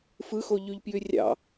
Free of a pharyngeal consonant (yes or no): yes